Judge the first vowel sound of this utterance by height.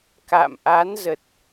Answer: low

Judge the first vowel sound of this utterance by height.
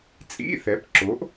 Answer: high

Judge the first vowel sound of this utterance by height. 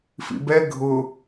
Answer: high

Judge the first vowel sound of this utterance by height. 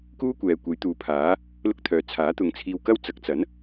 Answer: high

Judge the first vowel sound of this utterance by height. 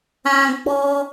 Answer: low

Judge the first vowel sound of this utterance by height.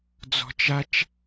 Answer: mid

